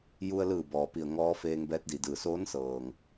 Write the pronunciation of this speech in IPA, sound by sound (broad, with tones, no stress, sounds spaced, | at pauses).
j u˧ ə̯ l ɯː˧˩ b ɔː˩ p i˧˩ ə̯ ŋ ɔː˧˥ f eː˧ ŋ b ɛː˧˥ t̚ d i˩ d ɯː˧˩ s oː˧˥ n s ɤː˩ ŋ